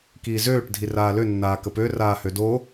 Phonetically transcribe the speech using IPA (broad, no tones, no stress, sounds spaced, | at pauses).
k iː z øː ʈ dʱ i r aː l ø nː aː k ə p ø r aː h ø d o